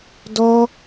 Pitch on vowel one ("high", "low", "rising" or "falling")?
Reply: high